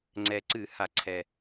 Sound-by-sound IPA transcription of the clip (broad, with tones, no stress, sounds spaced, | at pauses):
ŋ͡ǀ ɛ˨˩ ǀ ɨ˧˩˧ h a˧˩˧ ǀʰ ɛ˨˩